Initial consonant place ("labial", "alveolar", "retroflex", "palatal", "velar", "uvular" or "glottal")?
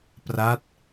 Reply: labial